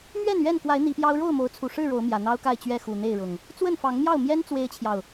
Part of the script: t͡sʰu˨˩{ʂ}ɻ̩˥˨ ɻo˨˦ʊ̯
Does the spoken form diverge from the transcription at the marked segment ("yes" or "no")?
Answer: no